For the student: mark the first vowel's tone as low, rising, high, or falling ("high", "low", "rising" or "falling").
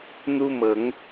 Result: high